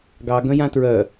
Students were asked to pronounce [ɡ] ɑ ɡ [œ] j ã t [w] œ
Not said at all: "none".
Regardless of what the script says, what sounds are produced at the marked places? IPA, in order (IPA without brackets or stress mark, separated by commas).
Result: ɡ, œ̃, ɹ